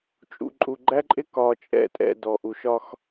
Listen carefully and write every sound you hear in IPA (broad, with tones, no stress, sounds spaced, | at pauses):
t͡ʃʼ ṵ˨ ǃʼ u˨ ɡ͡ǃ æ˦ ǃʼ ɪ˦ k ɒ˨ t͡ʃʼ ɛ̰˦˨ tʼ ɛ̰˦˨ d ɔ˨ ʔ u˨ ʃ ɒ˦ x